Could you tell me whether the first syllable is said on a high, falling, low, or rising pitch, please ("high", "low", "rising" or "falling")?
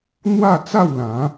falling